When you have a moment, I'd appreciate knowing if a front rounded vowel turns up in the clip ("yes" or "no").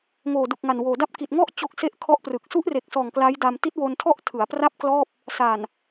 no